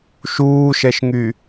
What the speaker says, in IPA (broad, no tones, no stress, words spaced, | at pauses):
ʃuːʃɛʃŋy